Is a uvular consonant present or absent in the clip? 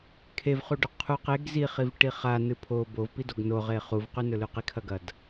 present